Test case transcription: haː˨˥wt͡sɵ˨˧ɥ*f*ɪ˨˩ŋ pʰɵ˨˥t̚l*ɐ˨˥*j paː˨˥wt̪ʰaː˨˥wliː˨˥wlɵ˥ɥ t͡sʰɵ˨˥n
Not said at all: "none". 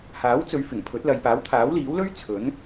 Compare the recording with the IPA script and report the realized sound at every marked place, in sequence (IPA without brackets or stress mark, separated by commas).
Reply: f, ɐ˨